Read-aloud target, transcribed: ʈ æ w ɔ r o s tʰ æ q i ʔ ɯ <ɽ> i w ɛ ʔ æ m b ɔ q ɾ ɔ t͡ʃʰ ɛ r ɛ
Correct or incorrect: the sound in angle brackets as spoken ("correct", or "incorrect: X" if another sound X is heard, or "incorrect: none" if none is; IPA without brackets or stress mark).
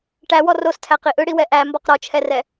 correct